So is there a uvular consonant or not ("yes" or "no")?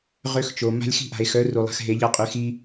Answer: yes